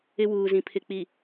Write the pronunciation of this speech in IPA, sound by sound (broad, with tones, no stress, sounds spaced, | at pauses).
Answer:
ɪ˦ w uː˨ z ĩ˨ pʰ ɪ˨ k͡p i˨